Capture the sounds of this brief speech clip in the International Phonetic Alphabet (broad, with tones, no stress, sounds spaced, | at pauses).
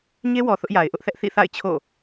ɲ e˦ w ɔ˨ θ ʊ˦ ʔ j a˨ ɪ̯ ʔ ʊ˦ ʔ θ ɛ˦ ʔ θ ḭ˦˨ θ a̰˦˨ ɪ̯ t͡ɕʰ o̰˦˨